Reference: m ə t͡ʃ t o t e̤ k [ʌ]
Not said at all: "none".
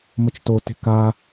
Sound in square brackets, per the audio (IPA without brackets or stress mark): a